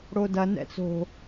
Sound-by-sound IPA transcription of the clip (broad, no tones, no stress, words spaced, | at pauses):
ɽodɐ nɛ̰t͡so̤